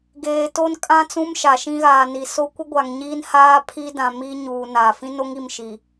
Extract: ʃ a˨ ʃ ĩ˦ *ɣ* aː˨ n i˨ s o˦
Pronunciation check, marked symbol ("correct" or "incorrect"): correct